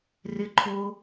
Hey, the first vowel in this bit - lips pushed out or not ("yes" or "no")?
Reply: no